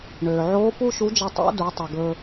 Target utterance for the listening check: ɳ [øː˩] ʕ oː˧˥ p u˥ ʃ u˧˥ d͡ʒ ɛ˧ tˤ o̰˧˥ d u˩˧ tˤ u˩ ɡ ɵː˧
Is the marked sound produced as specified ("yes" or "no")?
yes